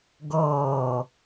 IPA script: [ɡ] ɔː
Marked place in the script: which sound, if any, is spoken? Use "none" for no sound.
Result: ɡ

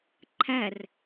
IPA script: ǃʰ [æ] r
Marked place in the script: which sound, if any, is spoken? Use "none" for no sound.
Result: æ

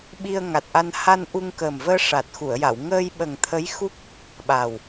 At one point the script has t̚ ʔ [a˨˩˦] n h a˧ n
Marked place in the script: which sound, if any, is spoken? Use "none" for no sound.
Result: a˧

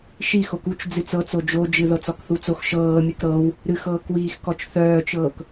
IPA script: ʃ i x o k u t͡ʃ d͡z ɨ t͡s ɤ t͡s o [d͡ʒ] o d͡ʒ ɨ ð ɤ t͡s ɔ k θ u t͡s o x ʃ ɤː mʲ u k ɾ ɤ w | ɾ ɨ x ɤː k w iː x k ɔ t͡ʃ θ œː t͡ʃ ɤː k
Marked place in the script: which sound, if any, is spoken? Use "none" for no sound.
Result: d͡ʒ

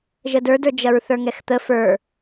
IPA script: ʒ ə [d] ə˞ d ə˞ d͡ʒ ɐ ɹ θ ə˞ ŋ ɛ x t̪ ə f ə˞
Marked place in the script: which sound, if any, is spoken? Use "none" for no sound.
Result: d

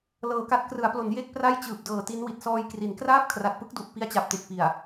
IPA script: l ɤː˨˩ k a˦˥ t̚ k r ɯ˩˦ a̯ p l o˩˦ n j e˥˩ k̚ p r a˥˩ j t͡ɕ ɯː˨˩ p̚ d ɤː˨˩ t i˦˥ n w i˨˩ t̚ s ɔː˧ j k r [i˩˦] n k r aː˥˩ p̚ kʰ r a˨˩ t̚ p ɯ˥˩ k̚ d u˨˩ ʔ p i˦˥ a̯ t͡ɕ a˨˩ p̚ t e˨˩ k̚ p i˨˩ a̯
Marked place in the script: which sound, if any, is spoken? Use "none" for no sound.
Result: i˩˦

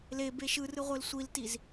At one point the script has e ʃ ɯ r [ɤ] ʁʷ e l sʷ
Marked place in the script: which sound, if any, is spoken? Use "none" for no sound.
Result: ɯ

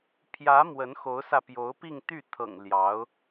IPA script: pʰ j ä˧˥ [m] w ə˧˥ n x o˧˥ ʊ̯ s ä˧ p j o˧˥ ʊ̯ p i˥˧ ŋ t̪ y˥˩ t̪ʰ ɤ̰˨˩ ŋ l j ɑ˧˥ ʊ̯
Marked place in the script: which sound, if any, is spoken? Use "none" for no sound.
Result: m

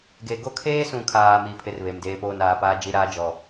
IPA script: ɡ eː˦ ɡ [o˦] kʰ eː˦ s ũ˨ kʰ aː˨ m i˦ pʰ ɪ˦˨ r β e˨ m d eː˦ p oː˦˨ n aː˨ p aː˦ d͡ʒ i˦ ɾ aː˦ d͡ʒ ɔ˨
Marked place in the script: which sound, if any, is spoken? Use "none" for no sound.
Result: o˦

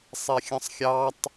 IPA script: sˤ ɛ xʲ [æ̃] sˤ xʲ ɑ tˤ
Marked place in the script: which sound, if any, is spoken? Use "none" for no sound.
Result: ə̃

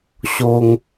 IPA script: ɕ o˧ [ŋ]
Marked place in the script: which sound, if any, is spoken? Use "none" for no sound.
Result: ŋ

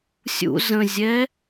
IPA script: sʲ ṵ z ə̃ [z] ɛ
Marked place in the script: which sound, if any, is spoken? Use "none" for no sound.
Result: zʲ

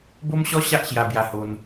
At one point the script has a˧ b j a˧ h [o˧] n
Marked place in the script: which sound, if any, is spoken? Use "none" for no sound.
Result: o˧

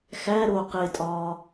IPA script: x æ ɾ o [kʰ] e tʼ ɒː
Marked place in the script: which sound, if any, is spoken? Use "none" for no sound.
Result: q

